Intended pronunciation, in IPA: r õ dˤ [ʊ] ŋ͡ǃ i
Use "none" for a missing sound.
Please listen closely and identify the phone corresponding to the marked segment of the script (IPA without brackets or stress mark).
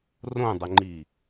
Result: ʊ